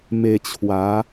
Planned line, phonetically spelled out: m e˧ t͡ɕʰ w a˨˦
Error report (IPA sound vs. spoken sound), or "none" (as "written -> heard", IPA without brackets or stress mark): none